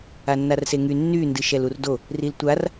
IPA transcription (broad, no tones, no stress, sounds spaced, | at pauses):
a nː a r s e ŋ y nː y n d ɨ ʃ ɛ l u r d o | r i l tʷ a r